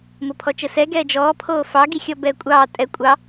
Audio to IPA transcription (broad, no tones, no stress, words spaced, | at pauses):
mopʰɔt͡ʃəsɛ ɡɛːd͡ʒɔː pʰoːfɑ ɡixʲɔbɛːkʷʼɑː tʼɛ kʷʼɑ